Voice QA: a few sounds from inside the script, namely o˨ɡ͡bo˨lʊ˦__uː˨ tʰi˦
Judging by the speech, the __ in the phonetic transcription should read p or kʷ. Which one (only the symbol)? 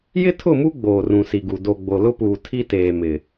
p